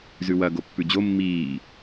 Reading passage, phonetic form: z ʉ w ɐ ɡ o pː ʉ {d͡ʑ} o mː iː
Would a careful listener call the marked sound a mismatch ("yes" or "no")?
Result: no